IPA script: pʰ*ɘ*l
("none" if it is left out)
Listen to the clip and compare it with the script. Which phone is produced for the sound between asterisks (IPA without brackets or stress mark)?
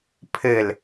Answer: ɘ